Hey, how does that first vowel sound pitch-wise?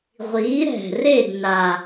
rising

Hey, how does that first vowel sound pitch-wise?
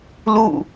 falling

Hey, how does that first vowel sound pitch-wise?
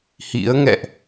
rising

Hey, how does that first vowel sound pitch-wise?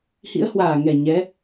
rising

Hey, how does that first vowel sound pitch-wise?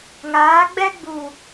rising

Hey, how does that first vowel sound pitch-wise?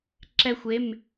high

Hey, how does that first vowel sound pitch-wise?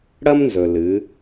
high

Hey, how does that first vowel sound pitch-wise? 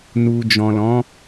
low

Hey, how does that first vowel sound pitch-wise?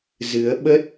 rising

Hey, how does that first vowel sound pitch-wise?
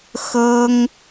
high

